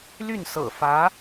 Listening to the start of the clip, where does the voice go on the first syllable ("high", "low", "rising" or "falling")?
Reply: falling